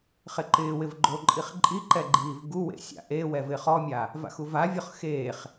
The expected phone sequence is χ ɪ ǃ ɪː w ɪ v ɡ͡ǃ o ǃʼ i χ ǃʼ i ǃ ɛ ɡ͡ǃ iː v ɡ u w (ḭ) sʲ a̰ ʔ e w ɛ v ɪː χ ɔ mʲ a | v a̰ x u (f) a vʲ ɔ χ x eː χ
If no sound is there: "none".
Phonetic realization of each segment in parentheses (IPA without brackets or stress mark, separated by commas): ḛ, v